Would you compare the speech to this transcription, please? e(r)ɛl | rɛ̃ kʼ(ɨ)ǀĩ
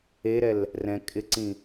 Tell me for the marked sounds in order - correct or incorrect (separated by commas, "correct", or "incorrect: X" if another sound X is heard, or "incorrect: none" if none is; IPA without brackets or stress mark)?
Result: incorrect: ɾ, incorrect: ɪ